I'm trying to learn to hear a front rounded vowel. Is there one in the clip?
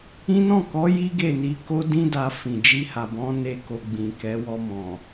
no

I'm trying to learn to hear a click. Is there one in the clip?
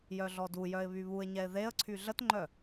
yes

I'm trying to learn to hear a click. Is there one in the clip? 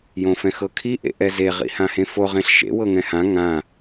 no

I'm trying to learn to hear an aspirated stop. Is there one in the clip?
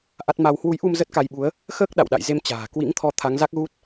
yes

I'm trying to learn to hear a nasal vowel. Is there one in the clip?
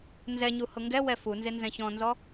yes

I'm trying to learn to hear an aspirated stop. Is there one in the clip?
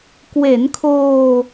yes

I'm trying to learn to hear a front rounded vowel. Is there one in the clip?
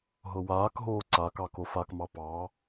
no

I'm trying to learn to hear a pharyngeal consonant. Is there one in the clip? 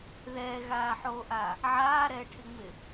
yes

